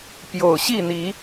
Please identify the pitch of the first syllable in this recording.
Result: low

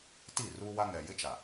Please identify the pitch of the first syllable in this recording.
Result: falling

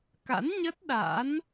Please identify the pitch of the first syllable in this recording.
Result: rising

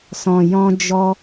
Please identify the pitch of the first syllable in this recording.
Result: low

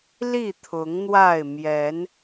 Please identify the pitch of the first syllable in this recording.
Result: falling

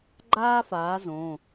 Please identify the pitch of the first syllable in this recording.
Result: high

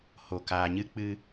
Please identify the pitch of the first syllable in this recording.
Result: low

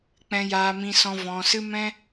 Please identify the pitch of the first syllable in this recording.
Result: high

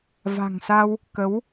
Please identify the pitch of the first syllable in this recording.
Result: low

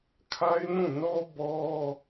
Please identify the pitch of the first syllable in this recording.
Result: high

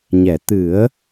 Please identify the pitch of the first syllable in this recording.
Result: low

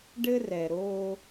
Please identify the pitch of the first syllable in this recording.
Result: high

